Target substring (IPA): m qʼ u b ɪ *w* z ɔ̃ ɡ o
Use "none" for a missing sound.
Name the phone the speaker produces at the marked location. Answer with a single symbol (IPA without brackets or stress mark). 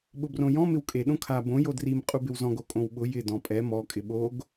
w